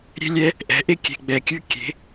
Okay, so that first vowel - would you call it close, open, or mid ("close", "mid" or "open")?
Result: mid